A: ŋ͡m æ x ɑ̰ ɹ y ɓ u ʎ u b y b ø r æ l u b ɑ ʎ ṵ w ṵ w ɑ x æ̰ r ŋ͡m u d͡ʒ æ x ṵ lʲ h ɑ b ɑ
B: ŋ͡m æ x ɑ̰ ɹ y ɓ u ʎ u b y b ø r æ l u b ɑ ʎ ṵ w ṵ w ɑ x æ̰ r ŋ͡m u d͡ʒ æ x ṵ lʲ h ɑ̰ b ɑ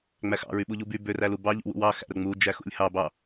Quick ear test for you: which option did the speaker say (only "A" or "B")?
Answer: A